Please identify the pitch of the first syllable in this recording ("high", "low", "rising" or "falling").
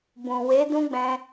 low